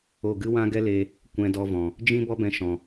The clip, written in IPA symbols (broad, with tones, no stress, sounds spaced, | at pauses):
o˦˨ ɡ ɨ˦ w ã˦ ɡ ɛ˦ l e˧ | kʷ ɛ̃˧ d ɔ˧ v ɔ̃˨ | d͡ʒ ĩ˦ b ɔ˦ b ɛ̃˧ ʃ ɔ̃˨